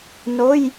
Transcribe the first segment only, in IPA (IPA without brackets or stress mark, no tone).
n